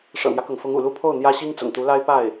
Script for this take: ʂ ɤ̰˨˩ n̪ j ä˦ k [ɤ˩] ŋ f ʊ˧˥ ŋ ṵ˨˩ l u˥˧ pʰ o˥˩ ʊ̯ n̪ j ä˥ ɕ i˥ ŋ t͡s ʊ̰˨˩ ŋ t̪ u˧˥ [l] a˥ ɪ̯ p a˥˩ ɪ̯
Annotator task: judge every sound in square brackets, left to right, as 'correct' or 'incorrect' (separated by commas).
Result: correct, correct